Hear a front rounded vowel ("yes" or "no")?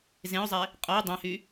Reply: yes